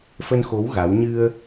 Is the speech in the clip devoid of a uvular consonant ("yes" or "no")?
yes